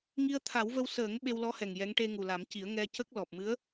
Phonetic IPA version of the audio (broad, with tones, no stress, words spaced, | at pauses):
ŋi˧ə̯t̪ʰa˨˩˦wvə˧w səː˨˩˦ŋ ɓe˧wlɔ˧˥hɛ˨˩ŋ jɛ˧˥ŋ ʈe˧ŋu˨˩la˨˩˦mci˨˩˦ə̯ ŋɛ˧cə˦˥k̚ lɔ˨˩p̚mɨ˧˥ə̯